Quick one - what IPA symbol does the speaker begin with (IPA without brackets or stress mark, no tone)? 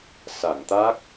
s